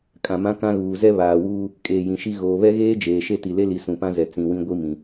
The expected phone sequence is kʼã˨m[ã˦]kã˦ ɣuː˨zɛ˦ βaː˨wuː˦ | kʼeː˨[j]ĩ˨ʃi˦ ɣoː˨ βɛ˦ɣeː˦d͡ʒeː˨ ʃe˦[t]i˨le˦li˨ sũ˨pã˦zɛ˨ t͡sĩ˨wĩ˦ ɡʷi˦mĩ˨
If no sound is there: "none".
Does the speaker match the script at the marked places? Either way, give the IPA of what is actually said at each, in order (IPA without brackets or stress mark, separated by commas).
ã˦, j, t